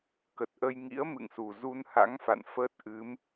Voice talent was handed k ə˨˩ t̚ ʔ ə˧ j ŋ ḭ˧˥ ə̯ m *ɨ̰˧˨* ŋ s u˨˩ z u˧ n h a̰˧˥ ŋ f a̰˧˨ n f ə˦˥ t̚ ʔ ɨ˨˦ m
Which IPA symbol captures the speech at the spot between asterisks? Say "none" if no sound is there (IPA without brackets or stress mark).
ɨ̰˧˨